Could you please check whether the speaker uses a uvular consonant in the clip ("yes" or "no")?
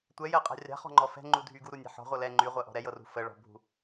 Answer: yes